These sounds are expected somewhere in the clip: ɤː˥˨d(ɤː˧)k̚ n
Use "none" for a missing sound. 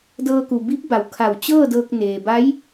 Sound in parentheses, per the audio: ɤː˧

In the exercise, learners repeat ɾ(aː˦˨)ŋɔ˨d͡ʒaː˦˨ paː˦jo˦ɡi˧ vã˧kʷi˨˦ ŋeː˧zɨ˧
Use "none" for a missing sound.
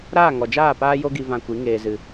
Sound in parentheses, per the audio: aː˦˨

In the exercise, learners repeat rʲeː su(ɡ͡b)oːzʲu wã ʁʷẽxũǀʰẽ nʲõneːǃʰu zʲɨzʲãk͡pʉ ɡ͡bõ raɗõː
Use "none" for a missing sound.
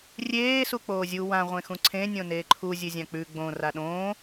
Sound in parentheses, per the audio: k͡p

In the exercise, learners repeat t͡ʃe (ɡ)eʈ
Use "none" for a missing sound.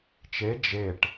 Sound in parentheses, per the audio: d͡ʒ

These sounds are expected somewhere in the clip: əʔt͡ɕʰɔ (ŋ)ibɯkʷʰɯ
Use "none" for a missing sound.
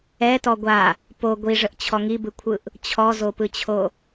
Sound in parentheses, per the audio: ŋ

